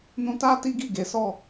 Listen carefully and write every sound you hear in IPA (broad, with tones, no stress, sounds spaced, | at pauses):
n ũ˧ t a˦ t i˦ ɡ i˦˨ ɡ e˨˦ s ɔ˦˨